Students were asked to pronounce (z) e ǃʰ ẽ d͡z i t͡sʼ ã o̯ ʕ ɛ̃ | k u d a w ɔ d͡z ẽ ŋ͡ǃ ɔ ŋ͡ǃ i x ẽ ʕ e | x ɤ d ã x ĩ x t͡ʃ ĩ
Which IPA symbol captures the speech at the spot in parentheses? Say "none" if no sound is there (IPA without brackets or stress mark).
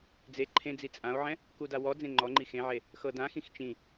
d͡z